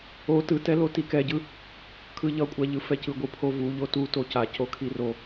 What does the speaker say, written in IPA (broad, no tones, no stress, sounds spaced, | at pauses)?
o t ɯ t ɛ l o t i k ɛ ɟ ɯ | kʰ ɯ ʎ ʌ kʷʼ a ʎ ɯ f ɛ c ɯ ɡʷ ɯ pʰ o v u ʎ o t u t o c a c o kʰ i r o